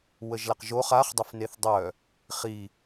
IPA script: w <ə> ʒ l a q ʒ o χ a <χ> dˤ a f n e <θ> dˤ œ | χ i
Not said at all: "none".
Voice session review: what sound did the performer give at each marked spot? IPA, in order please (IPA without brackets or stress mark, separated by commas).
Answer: ə, χ, θ